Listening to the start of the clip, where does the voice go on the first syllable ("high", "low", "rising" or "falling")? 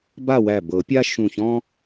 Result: falling